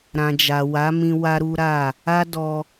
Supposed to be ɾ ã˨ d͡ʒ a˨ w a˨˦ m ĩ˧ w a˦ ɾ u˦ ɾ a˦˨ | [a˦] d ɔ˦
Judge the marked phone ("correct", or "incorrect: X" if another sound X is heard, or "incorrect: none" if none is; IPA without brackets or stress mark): correct